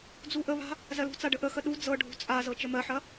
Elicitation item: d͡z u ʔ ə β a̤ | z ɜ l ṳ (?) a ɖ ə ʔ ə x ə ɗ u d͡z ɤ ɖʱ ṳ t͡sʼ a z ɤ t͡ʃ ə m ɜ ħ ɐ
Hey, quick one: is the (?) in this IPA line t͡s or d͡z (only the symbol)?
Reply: t͡s